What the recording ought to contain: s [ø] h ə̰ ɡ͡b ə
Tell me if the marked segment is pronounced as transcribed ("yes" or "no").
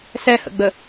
no